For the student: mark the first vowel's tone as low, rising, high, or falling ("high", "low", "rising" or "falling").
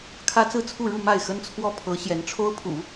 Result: high